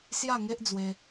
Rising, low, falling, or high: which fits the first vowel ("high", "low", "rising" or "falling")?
falling